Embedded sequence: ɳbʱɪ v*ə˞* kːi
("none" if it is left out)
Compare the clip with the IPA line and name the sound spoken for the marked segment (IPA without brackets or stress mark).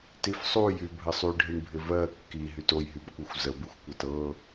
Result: ɜ